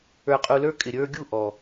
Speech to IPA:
ə˞˨ qʼ u˨ l ə˞˧ kʼ ɪ˨ ɾʲ ə˞˧ ɡʲ u˦˨ ʔ ɔ˨

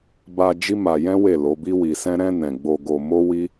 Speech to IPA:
b a˧ d͡ʒ i˦ m a˧ j ɛ̃˦ w e˦˨ l o˨˦ b i˦ w i˧ s ɛ̃˦ ɾ ɛ̃˧ n ɛ̃˨ ɡ͡b o˧ ɡ o˧ m o˦ w i˦

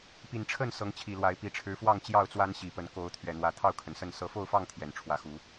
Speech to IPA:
p i˨˩ n ʈ͡ʂʰ ə˥˨ n s ɤ˨˦ ŋ t͡ɕʰ i˨˩ l w a˨˦ ɪ̯ p i˨˦ ʈ͡ʂʰ ɻ̩˨˦ f w ɑ˥˨ ŋ t͡ɕ j ɑ˥˨ ʊ̯ t͡s w a˦ n ɕ i˨˦ p ə˨˦ n k o˨˦ ʊ̯ t̪ʰ ɥ ɛ˨˩ n̪ w ä˨˦ t̪ʰ ɑ˥˨ ʊ̯ kʰ ə˩ n s ə˥˨ n s ɤ˨˦ f o˥˨ ʊ̯ f ɑ˥˨ ŋ t̪ʰ j ɛ˨˩ n ʈ͡ʂʰ w ä˨˦ x u˨˦

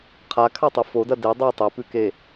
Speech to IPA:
qʰ a kʰ a tˤ u f o d ɐ d e dˤ ʉ tˤ e p ʉ k e

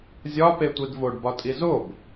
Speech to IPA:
zʲ ɒ p e tʷ i d v o ɖ b ɒ tʼ i z o b

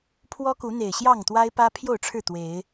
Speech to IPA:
pʰ w ɔ˦ k u˨˦ n̪ e˨˩ ɪ̯ ɕ j ɑ˥˨ ŋ t̪ w a˦ ɪ̯ p ä˦ pʰ j o˥˨ ʊ̯ ʈ͡ʂʰ ɻ̩˥˨ t̪ w e˨˦ ɪ̯

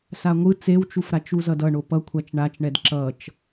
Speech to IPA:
s a ŋʷ ɯ t͡s e w t͡ʃ u f ɾ a t͡ʃ u z ʌ d ʌ ɳ o p ʌ kʷʰ a t͡ʃ ɳ a t͡ʃ ɳ ɛ d ǁ ʌ t͡ʃ

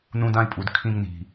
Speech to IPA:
n ũ˧ d ã˦˨ i̯ pʼ u˨ d kʰ ĩ˧ ŋ n i̤˨

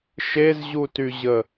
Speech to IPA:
ʃ e z ʑ u t y ʑ ə

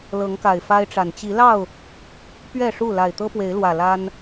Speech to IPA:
l ɤ˨˦ ŋ k a˨˩ ɪ̯ f a˦ ɪ̯ ʈ͡ʂ a˨˩ n t͡ɕ i˨˦ l ɑ˥˨ ʊ̯ | p ɥ ɛ˥˨ ʂ u˥˨ l a˨˩ ɪ̯ t̪ ɤ˦ p w e˨˦ ɪ̯ l w ä˨˩ l a˦ n

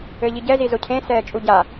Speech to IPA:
ɘ ʎ i ɟ ɛ z i z o cʰ ẽ s ɛː t͡ʃʼ u ɟ a

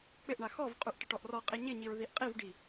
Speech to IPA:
k͡p ɪ ʔ ɳ a x ɔ v qʼ u ʔ ʈ ɪ ʈ ɔ ʔ r ɔ qʼ i ɲ ɪ ɲ i ɹ ð i ʔ qʼ i v ɖ i

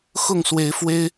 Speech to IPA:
x ʊ˥˨ ŋ s w e˨˦ ɪ̯ f w e˦ ɪ̯

